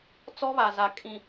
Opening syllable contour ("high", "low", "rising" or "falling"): high